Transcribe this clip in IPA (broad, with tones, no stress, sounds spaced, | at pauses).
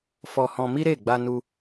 f ɔ˧ h ɔ̃˧ m i˦ ɾ e˦˨ ɡ͡b a˧ n u˧